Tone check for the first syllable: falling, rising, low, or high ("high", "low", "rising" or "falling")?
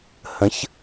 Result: rising